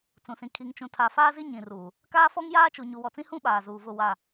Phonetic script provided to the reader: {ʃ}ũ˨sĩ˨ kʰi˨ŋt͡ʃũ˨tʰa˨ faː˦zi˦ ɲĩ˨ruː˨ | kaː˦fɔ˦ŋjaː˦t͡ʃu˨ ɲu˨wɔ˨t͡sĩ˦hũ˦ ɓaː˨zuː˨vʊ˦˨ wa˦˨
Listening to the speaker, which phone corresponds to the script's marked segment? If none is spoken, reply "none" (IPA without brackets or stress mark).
t͡s